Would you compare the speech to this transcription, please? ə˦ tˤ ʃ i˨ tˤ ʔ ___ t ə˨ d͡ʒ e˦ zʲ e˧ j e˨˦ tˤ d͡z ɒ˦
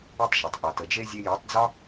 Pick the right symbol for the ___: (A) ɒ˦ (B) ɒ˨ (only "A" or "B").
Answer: B